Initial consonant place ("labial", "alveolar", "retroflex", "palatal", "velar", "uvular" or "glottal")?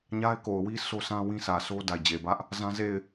palatal